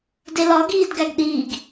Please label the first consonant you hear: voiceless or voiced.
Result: voiced